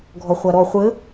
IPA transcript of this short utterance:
ɡʱɔχʷaɾɔ χʷɘ

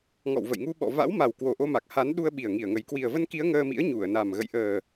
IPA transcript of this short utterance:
ŋɔ̰˧˨wvə̰˧˨jŋu˧ɓɔ̰˧˨ va̰˧˥wma˨˩w kwo˨˩ʔo˧ma˨˩k̚ha˨˦n ɗu˧ə̯ɓi˨˩ə̯ŋi˧˩ə̯ŋə˨˩j kwi˨˩ə̯və˧nki˨˦ə̯ ŋəː˧mḭ˧˥ə̯ ɲu˧˩ə̯na˨˩m ɣə̰˧˨jʔəː˨˩

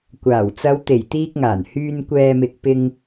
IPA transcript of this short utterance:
kʷaː˨˩wt͡sɐ˨˧wt̪e˨˩j t̪iː˧k̚ŋaː˨˩n hyː˧n kʷɛː˧mɪ˧k̚ pɪ˧ŋ

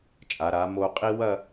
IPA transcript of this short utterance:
t͡ʃʼa˩˧ɾa˩˧mo˧qʼi˥ wɐ˥˧

